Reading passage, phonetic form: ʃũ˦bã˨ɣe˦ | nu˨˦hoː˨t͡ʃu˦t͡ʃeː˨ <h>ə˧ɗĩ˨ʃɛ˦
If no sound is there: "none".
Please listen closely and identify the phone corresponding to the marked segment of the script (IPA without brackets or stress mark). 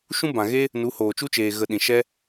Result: ɣ